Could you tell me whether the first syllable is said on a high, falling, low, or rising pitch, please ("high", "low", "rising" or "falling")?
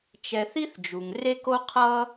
low